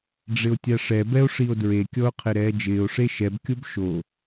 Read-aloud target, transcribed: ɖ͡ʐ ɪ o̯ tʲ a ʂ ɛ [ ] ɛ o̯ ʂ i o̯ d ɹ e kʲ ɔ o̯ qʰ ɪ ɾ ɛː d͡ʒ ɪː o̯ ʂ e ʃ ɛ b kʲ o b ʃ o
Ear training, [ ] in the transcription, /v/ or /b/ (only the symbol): b